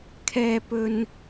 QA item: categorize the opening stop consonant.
aspirated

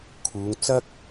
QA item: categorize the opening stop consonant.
aspirated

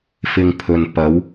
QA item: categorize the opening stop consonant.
aspirated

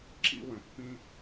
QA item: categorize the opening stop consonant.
click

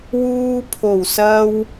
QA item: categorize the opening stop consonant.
aspirated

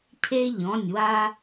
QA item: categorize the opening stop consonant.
aspirated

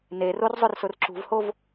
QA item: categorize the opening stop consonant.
click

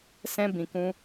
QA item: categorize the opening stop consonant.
plain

